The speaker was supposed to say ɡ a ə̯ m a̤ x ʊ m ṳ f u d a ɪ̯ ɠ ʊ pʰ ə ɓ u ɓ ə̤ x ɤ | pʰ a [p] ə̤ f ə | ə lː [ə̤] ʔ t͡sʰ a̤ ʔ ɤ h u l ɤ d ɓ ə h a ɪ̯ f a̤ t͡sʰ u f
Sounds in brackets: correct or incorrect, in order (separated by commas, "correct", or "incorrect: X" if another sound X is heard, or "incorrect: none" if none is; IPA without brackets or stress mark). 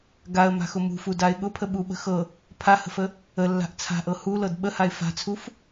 incorrect: h, incorrect: a̤